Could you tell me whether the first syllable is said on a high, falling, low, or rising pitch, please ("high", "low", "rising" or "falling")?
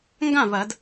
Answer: falling